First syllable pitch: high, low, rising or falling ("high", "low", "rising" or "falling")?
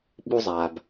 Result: high